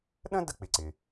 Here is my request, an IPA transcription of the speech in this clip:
ɗ ə̃˥ d ə˥ k͡p ɪ˩ ǀ ɪ˩

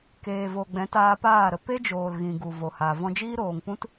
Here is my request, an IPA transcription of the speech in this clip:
k eː˨ v o˨ ɡ͡b ɛ̃˨˦ t aː˧ p aː˦˨ ɾ ə˧ p e˦ d͡ʒ oː˨ l ɣ ĩ˨ ɡ u˨ v o˨ h a˨ v ɔ̃˧ d͡ʒ iː˦ ɾ oː˨ ŋ p ũ˦ t

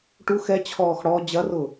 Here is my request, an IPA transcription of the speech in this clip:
ʈ u x ɛ t͡ɕʰ ɔː x ɽ ɔ d͡ʑ ɐ r ʊ

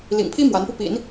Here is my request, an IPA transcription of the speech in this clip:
l ḭ˨˩ ŋ pʰ i˥ m w a˧˥ n p u˧ p ḭ˨˩˦ n

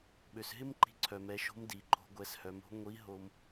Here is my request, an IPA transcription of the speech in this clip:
ɓ ø˩ s ɦ ɪ˥ m ǃ i̤˧ ǀʰ œ˩ m ɛ˩˧ ʃ o̤˧˥ m d i˩ ǃʰ o̤˩˧ ɡʷ ɛ˩˧ s h œ˩˧ m o̤˧˥ ŋʷ i˧˥ ɦ o˧ m

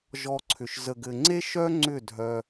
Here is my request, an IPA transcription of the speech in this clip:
ʒ ɔ˧ ǀʰ ʏ˨ ʃ z ə˨ ɡ ɘ˨ ŋ͡ǀ e˦ ʃ œ˦ ŋ͡ǀ ʏ˦˨ dʱ œ˧

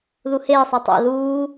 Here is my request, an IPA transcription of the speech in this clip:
ð u h eː sˤ a tˤ a̰ ð uː

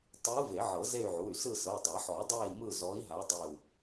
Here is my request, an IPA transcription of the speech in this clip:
tˤ ɯ˨˦ v e˨˩˦ ʕ ɤ˨˩˦ z e˦˨ y̯ ʕ u˩˧˩ y̯ s ɯ˦˨ s ɤ˩˧˩ dˤ a˨˩˦ ħ ɔ˨˩˦ dˤ e˦˨ i̯ m ɯ˦˨ z ɔ˨˦ i̯ ɦ a˨˦ dˤ e˦˨ u̯

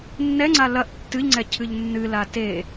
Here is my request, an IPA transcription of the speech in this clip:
nː ɛ ŋ͡ǀ a l ɐ ʔ tː ɨ ʎ ŋ͡ǀ ɛ cʰ ɨ ʎ nː ɨ l a t e

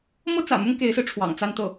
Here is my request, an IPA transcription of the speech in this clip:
m ɤ˥ t͡s ä̰˨˩ m ʊ˥ ŋ k e˧˥ ɪ̯ s ɹ̩˧ ʈ͡ʂʰ w ɑ̰˨˩ ŋ t͡s a˥˧ n t̪ ɤ˥˩

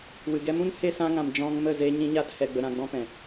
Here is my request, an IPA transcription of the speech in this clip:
w ɨ˨ ɡ ɛ˧ m ũ˦ n h e˧ s ã˧ ŋ ã˨ m d͡ʒ ɔ̃˧ ŋ m ə˦˨ z e˦ ɲ ĩ˦ ɲ a˦ t h ɛ˧ ɡ͡b ə˧ ɾ ã˧ ɡ͡b ɔ̃˦ p ɛ̃˨

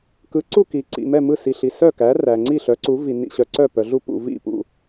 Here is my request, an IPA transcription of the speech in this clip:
k ɯ˨˦ ǀ u˦˨ k i˨ ǀ ḭ˨ m ɛ˦˨ m ɯ˦˨ s i˨ ɬ i˨ s œ˦˨ k æ˨˦ r æ˨ ŋ͡ǀ i˦˨ ɬ œ˨˦ ǀ u˨˦ v i˨ n ḭ˨ ɕ œ˨ ǀ œ˦˨ p œ˨ ɮ u˦˨ p ṵ˦˨ v ḭ˦˨ p ṵ˦˨

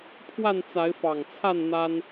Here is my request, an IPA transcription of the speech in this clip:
pʰ w a˥˨ n t͡s a˨˦ ɪ̯ f ɑ˨˩ ŋ t͡sʰ a˥˨ n n̪ a˦ n

